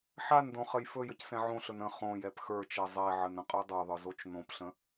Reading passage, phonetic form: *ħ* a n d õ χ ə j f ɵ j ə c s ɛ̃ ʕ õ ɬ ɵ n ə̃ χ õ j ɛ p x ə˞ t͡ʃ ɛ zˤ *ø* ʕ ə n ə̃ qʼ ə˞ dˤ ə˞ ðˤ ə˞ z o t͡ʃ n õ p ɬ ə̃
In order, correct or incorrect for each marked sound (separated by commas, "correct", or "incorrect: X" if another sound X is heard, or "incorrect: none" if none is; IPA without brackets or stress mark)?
correct, incorrect: ɛ